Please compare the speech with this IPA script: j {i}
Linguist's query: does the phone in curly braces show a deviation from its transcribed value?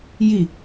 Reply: no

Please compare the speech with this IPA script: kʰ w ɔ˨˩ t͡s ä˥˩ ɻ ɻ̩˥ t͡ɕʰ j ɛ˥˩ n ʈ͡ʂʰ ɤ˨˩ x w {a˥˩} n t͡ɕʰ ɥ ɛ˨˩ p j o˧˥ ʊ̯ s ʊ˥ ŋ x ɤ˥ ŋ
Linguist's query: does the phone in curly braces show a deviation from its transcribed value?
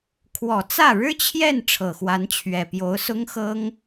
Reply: yes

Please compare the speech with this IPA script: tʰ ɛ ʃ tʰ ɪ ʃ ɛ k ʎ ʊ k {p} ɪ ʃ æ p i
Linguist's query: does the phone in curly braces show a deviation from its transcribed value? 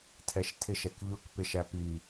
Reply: no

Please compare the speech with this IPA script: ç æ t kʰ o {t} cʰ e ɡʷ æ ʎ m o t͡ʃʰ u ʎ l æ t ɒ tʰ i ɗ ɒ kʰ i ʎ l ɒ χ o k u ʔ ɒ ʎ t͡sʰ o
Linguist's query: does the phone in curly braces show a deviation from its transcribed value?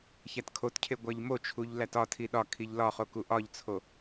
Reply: no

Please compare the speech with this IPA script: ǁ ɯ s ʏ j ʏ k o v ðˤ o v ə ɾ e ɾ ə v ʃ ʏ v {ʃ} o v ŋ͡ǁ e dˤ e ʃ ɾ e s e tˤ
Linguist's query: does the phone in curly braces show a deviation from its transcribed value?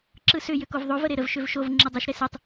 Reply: no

